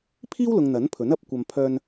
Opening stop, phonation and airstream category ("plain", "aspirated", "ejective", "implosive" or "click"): aspirated